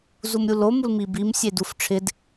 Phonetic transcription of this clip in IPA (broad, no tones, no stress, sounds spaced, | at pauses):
z u m ɾʲ u l o m u l m i b i m sʲ e d u f ʈ͡ʂʰ ɪ d